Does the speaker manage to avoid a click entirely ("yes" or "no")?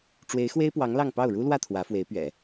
yes